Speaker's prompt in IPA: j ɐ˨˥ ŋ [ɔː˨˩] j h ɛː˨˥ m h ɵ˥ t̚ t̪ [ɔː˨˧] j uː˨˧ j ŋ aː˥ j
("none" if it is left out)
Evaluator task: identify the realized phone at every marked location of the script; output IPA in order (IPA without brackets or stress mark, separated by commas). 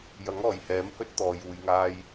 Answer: ɔː˨˩, ɔː˨˧